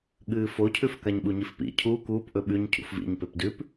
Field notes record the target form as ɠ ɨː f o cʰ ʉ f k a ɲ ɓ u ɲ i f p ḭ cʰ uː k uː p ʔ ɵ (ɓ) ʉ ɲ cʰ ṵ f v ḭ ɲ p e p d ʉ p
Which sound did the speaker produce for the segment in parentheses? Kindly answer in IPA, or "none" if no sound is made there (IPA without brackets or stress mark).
ɓ